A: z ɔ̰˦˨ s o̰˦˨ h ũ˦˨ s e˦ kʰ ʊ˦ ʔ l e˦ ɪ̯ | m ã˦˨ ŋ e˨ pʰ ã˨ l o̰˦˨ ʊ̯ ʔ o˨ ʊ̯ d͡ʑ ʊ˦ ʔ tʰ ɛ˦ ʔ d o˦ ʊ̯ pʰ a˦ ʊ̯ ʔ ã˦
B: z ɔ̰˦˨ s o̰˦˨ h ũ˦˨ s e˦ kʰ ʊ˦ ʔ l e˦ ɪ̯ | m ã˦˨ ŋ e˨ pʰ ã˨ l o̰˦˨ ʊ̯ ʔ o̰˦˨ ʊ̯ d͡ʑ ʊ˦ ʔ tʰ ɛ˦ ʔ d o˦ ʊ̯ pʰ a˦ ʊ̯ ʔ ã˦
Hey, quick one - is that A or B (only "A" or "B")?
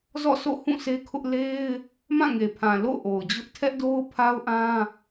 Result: A